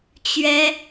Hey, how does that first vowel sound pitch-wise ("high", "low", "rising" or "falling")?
high